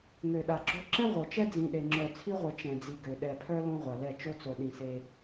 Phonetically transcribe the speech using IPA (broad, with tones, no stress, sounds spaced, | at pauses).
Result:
ŋ ø˨ ɗ a˨ ɡ͡ǁ o˦ ǁ ɛ̃˦ ʁʷ œ˨ t͡ʃ ɛ˦ d͡z ĩ˨ ɗ e˨ ŋ͡ǁ œ˨ t͡sʰ i˦ ʁʷ ɛ˨ t͡ʃ ɛ̃˨ d͡z i˨ ɡ ø˨ ɗ ɛ˨ pʰ œ˦ l õ˦ ʁʷ a˨ l ɛ˦˨ t͡ʃ o˦ t͡s o˨ ɗ ĩ˨ s e˦